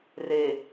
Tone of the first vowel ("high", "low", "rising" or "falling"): low